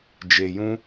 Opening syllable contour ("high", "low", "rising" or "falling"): low